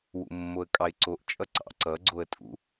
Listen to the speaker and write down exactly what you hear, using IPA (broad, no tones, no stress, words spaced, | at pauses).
wṵmːoə̯kʼɑɪ̯ǀoʔ t͡ʃʼʌǀɑ̰ ǀʌ ɡ͡ǀoə̯tʼṵ